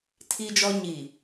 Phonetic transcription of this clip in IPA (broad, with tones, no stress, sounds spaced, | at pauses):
tʰ i˦ d͡ʒ ɔ˦ ɲ i˨